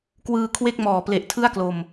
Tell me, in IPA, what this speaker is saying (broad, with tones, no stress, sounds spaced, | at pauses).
k w ɯː˧ kʰ w e˥˩ k̚ m ɔː˨˩ p l e˨˩ ʔ tʰ ɯ˥˩ a̯ k l o˧ m